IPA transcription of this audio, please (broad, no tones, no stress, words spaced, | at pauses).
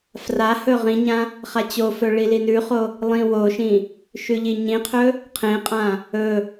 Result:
frahɵ ʁĩɲã | χat͡ɕofɵ ɭilinʉχo | lˠĩwoʃĩ | ʃʉʎiɲĩqʰɵ | qʰẽqʼã | ɵ